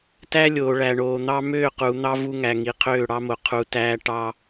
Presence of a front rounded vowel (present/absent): present